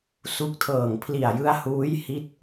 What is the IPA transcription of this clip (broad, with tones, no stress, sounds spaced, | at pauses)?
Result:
s u˦˥ k̚ tʰ ɤː˨˩ ŋ pʰ l i˨˩ a̯ j ɯ˦˥ a̯ h uː˦˥ j h i˦˥ t̚